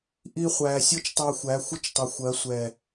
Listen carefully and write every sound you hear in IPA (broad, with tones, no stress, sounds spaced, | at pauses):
ʔ i˧ χʷ æː˨ sʲ ɔ˦ t͡ʃ tˤ æ˧ xʷ æ˨˦ xʷ ɪ˦ t͡ʃ tˤ ɪ˨ xʷ ɜ˨˦ sʷ ɛ˨